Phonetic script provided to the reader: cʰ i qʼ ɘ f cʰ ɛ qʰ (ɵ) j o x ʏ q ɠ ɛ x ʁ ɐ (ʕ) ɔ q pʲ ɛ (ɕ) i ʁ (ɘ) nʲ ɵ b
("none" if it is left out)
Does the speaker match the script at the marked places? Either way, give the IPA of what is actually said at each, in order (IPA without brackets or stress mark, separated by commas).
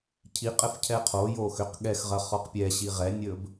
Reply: o, χ, ɕ, ɛ